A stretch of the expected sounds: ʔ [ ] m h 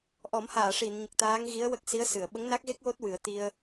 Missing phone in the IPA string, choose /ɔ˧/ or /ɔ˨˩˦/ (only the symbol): ɔ˨˩˦